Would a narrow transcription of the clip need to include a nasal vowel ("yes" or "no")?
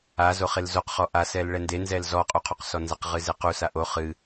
no